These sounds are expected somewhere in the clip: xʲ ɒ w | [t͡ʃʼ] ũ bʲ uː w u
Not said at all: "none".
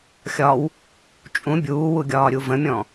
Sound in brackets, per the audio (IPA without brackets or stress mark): t͡ʃʼ